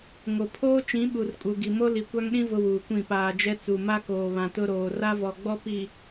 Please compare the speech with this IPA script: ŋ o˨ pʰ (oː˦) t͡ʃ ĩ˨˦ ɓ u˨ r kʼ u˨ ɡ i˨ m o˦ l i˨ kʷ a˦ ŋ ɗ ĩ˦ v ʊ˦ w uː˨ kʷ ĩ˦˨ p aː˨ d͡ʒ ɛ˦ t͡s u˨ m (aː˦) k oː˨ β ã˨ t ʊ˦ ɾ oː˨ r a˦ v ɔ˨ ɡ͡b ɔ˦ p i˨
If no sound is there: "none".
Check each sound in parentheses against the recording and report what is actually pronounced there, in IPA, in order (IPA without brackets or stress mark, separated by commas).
oː˦, a˦